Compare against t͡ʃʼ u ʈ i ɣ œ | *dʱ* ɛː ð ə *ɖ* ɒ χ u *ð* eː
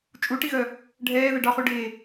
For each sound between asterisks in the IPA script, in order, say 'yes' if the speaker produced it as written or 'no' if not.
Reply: no, yes, no

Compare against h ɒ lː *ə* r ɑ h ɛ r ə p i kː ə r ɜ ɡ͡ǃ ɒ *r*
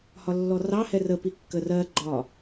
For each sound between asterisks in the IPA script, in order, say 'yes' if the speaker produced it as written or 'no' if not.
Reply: no, no

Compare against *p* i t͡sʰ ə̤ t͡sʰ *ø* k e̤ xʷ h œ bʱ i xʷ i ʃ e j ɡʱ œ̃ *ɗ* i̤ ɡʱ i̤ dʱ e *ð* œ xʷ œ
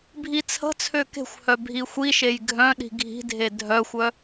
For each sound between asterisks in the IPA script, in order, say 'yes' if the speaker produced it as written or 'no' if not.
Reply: no, yes, yes, no

